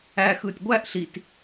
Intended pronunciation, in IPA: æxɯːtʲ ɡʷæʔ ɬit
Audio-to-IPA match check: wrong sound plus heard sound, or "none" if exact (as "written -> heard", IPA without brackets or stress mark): none